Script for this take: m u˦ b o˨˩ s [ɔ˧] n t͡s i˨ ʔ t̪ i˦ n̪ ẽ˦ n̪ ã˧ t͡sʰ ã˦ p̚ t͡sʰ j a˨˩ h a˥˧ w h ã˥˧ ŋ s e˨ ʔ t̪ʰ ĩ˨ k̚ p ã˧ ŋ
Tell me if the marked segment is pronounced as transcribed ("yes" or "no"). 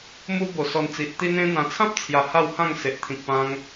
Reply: yes